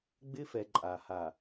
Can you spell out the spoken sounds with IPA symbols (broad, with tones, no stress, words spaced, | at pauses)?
ɡ͡bɪ˦fɛ˨ ǃʼa˨ ha˨